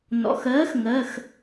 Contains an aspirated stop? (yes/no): no